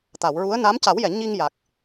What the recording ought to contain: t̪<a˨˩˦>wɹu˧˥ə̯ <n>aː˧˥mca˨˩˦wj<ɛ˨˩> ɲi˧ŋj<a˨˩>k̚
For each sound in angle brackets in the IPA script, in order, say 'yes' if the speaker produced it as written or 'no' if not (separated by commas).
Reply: no, yes, no, yes